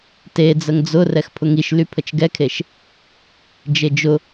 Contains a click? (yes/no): no